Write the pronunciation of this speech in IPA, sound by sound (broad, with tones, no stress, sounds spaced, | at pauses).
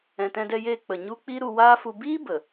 ɛ̃˨ t ɛ̃˧ d ɛ˧ j eː˧ k͡p ə˨ ɲ u˦ k͡p i˦ ɾ u˧ w aː˦ f u˧ b iː˦ b ə˨